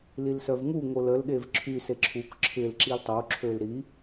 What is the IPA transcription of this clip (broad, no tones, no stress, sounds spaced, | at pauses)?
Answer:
l i l s œ v ŋ u ŋ o l ə l ɠ e v ǁʰ y s e ǁʰ u k ǁʰ ɪ l ǁ i l tˤ o ǁʰ ø l ɾ i